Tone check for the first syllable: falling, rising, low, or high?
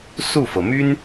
falling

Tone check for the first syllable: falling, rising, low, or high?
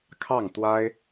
falling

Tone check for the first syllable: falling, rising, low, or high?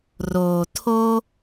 low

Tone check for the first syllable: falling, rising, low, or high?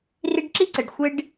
high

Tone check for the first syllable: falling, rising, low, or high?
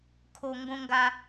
high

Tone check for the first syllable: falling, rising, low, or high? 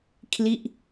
falling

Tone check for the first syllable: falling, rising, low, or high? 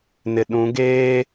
low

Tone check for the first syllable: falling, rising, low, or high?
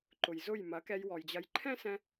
low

